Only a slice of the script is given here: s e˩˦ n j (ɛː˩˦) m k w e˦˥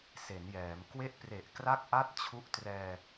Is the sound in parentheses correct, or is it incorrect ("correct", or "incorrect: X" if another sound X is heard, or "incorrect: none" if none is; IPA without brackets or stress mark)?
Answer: correct